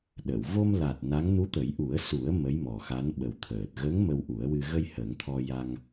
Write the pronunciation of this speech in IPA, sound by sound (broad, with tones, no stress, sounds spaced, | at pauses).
ɗ ə˨˩˨ w v o˧ m l a˨˩ t̚ n a˧˥ ŋ n u˧˥ t̪ ə˨˩˦ j ʔ u˨˩˦ ə̯ s u˨˩˦ ə̯ m ə˧˥ j m ɔ˨˩ x a˧˥ n ɓ ə˨˩ w t̪ʰ əː˨˩ t̚ ɣ ə˧˥ ŋ m ə˧ w ʔ u˨˩˦ ə̯ w ɨ˧ ɣ ə˧ j h ə˨˩˦ ŋ t̪ʰ ɔ˧ j a˧ ŋ